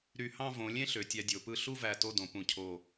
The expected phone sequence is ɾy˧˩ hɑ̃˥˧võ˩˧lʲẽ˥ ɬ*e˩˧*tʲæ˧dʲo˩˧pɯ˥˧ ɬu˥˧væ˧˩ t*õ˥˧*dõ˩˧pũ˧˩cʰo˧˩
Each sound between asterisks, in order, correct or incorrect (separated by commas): incorrect, incorrect